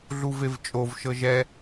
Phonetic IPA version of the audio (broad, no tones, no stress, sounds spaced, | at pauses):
ɮ u v e v t͡ʃʼ o v ʃ ɤ ʒ ɛ